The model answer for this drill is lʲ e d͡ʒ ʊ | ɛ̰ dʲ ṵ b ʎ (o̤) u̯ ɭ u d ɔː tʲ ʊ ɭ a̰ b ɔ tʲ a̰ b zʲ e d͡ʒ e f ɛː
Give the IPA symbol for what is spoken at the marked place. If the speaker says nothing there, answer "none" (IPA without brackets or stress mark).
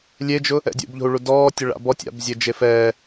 o̤